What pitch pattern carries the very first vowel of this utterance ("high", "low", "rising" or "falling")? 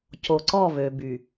low